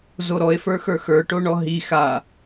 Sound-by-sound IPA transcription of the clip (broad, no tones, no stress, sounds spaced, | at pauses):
z o ɾ ɔ e̯ f ə˞ x ə˞ x ə˞ ʈ o ɳ ɔ ɦ i x a